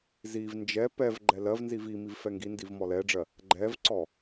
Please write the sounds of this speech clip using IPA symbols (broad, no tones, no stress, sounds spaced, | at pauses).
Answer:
z i v n d͡ʒ ɛ p ɛ v ɡ͡ǃ ɛ l ɜ v n z i v i m i v f ɛ ŋ ɡ i n d i v m ɔ l ɛ ɖ͡ʐ ɜ | ɡ͡ǃ ɛ v ǀ ɔ